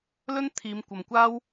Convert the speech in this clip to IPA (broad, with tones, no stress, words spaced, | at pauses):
lɵ˥n t̪ʰiː˨˧mkʷɐ˨mkʷaː˥w